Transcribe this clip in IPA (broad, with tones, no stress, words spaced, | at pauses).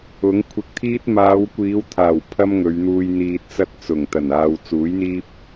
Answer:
ʊ˨˥ŋkʷʰɪ˧k̚ t̪ʰiː˥t̚ maː˨˧wkʷiː˨˧wt̪ʰaː˨˩w pʰɐ˥mŋɵ˨˧ɥ n̪uː˧j n̪iː˧t̚t͡sɐ˥t̚ t͡sʊ˨˩ŋt̪ɐ˨˩naː˨w t͡suː˨˥jn̪iː˥p̚